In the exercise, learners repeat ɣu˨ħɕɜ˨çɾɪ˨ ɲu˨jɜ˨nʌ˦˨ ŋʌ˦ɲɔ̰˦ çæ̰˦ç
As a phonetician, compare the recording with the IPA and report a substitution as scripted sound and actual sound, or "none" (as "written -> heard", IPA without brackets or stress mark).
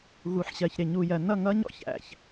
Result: none